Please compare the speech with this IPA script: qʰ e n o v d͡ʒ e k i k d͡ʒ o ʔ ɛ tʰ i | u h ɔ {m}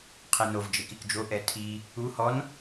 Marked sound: incorrect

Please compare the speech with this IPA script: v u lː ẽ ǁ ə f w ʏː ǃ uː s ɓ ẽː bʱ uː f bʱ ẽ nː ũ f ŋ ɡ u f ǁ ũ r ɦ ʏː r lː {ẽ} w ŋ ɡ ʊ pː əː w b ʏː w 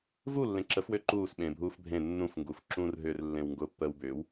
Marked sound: correct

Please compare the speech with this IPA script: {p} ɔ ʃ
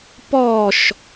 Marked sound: correct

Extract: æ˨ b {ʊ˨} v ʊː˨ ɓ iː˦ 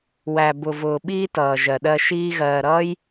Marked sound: correct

